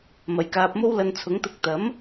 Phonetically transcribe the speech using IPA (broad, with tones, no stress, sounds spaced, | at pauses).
m ɐ˨ j k aː˧ p̚ m o˥ w l ɐ˧ n t͡sʰ ʊ˨˥ ŋ t̪ ʊ˧ k̚ t̪ ɐ˨˥ m